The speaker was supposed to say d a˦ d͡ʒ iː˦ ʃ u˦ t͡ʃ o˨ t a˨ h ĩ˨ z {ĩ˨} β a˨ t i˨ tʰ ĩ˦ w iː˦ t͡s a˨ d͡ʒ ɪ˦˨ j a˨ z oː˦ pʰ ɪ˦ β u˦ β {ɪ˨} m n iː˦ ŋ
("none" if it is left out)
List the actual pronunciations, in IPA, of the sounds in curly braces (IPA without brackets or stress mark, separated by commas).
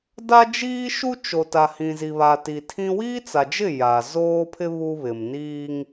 i˨, ɪ˨